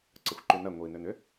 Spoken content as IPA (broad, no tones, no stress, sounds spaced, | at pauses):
ǀ ə xʷ ǃ y n ɐ ŋʷ i n ø n ʏ